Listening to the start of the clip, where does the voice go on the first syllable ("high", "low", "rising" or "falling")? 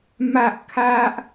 high